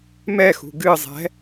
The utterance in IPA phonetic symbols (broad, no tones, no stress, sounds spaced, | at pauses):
m ɛ x ṳ ɡ ɨ zˤ ɛ̤